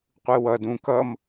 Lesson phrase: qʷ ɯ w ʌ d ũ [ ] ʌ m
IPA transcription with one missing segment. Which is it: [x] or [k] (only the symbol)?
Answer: k